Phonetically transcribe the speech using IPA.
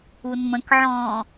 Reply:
unmə̃kʕɔ̃ː

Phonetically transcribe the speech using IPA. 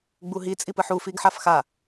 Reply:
ɡ͡buɦi t͡sʼipɯħu fiɡħafxa

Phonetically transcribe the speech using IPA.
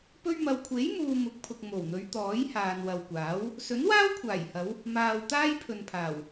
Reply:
pɵ˧ɥmɐ˨wkʷʰe˨˥jmuː˨ mʊ˨˥k̚pʰʊ˨k̚ mo˨˩wn̪ɵ˨˧ɥ t̪ɔː˨˥jhaː˨nwɐ˨wkʷaː˨˥w | sɵ˨˥nwaː˥wkʷʰaː˨˩jhɐ˨˧w | maː˨w t̪aː˥jpʰɵ˨npʰaː˨˩w

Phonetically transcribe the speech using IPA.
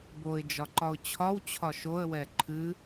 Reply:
boɪ̯ d͡ʒɒǃɒʊ̯t͡ɕʰɒwt͡ɕʰɒ ʃoə̯wɛ ǃʰɨ

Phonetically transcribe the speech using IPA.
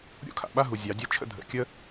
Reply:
ɾʲo̰˦kʰa̰˨ɓa˦ɦu˨ zʲɑ˨˦dʲɜ˦t͡ʃʰə̰˦ dʱə̰˨kʲə˦

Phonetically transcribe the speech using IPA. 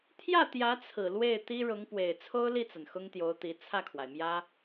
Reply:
t̪ʰjä˥˩t̪jä˧˥t͡sʰɹ̩˨˩ lwe˥˩ɪ̯t̪i˥ ɻʊ˧˥ŋpwe˨˩ɪ̯ t͡sʰo˥ʊ̯li˥˩t͡sa˩n xʊ˥ŋt̪jo˧˥ʊ̯t̪i˧˥ t͡sʰä˥˩kʰwa˩ɪ̯mjä˥

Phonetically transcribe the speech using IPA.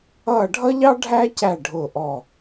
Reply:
ʌː˦˨ɖʱʌ˥ʎɑ˥ ɖʱæ˥cæ˦˨ ɖʱʊː˦˨ʔɔ˦˨

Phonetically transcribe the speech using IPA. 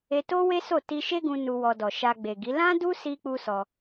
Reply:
e˧to˦we˦so˦˨ ti˧ʃe˦ɡũ˧ nu˧wɔ˧dɔ˨ ʃa˧ɡ͡be˨ɡi˨˦ lã˦du˦ si˦k͡pu˦sɔ˧

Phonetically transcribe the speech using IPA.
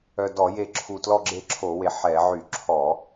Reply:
œ˨˩dɔ˧˩˧je˨˩ǁʰu˨˩ tlɔ˦˨ɡ͡ǁe˦˨ǁʰo˧˩˧we˨˩ ħɛ˧˩˧ʕy˧˩˧ ǁʰɔ˧˩˧

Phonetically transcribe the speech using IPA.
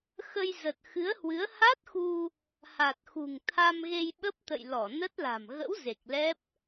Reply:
xə˧jzə˨˩t̚ xɨ˨˦ə̯hwɨ˨˦ə̯ ha˦˥t̚xu˧ | ha˨˩t̚xṳ˨˩ŋt̪ʰa˧m ɣe˧jɓə˦˥p̚t̪ə̰˧˨j lɔ˧˩nə˦˥t̚la̤˨˩m ɣə̰˧˥w ze˨˩k̚lɛ˦˥p̚

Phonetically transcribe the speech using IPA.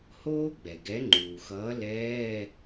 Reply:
hoː˥ɡ͡bɛ˩ɡɛ˨˥ ŋ͡ǃuː˩xʌː˨˥ lɛː˧˥˧

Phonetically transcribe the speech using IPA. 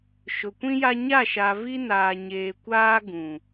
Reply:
ʃʊ˨kʷĩ˦ja˦ ɲa˦˨ʃa˨vi˦ naː˨ɲeː˨ kʷaː˦ ɡũ˨

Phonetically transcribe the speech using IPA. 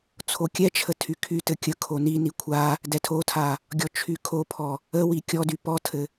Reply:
t͡sʰokʲɛt͡ʃʰə tʰykʰytɘ kʲəkʰo nini kʷʰa | dɛtʰotʰa | ɡʲɔt͡ʃʰykʰopʰɔ | əwi kʲɔdy pɔtʰɘ

